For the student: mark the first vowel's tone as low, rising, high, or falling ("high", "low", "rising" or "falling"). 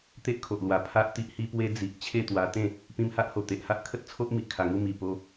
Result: high